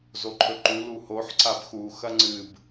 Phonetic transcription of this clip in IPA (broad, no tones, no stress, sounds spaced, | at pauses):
z o ǃʰ ɵ ǃ u l u h o ħ ǀ a b x u x ɐ ŋ͡ǀ ɨ b